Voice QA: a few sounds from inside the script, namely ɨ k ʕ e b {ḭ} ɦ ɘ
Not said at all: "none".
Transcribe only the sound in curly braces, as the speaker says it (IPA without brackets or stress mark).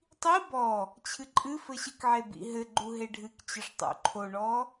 ḭ